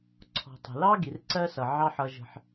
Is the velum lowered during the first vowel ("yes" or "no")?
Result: no